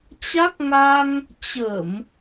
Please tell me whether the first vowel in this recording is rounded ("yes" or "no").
no